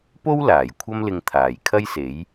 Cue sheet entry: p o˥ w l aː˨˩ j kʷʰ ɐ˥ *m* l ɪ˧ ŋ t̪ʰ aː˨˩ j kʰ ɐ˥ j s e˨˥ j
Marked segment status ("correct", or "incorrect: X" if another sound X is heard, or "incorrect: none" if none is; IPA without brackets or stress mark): correct